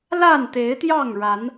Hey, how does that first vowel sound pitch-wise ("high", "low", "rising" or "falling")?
falling